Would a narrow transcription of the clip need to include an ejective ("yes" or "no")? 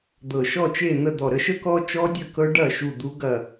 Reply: no